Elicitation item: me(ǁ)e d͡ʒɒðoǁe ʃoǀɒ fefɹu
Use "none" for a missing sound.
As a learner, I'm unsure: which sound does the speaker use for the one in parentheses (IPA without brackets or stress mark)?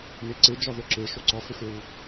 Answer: ǀ